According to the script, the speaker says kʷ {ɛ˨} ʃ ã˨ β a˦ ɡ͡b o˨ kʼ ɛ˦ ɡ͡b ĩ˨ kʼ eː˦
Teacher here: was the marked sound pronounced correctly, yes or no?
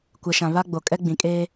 yes